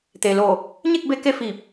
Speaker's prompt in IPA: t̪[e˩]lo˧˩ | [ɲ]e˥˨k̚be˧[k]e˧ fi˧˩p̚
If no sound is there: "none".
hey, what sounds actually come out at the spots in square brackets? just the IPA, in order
e˩, ɲ, k

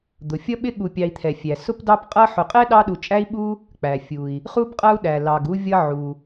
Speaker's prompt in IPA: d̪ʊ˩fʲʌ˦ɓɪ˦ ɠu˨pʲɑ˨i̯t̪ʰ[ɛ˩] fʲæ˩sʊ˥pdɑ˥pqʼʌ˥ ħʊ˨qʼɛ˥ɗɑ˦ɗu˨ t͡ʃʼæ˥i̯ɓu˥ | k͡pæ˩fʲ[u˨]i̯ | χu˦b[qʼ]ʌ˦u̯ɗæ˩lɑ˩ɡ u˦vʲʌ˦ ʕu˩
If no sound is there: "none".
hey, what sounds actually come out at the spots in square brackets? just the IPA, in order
ɛ˩, u˩, qʼ

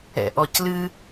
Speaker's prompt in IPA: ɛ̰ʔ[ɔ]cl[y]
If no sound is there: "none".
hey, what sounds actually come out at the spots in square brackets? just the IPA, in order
ɔ, ɨ

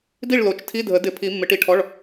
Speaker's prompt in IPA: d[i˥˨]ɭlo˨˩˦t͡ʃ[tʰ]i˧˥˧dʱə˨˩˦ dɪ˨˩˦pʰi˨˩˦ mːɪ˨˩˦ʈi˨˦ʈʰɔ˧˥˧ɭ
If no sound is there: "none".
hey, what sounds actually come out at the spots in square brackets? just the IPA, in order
i˥˨, tʰ

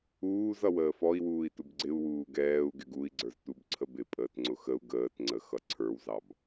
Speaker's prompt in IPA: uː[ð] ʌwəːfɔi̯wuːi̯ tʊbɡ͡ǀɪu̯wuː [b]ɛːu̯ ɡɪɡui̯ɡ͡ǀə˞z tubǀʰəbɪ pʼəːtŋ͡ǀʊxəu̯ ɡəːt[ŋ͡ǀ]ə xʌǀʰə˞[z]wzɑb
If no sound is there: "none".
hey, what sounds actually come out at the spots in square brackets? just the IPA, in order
z, ɡ, ŋ͡ǀ, none

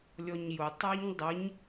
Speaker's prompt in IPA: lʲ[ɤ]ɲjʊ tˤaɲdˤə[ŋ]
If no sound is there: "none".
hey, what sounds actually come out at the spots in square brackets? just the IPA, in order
ɔ, ɲ

